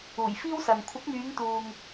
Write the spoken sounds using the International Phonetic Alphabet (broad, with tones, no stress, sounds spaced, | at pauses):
uː˨˩ j f iː˥ w s ɐ˨ n kʷʰ ɪ˨˥ k̚ m yː˨˧ ŋ t̪ uː˨ ŋ